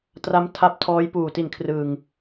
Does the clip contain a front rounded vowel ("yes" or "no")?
no